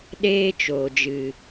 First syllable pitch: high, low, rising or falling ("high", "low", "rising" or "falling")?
high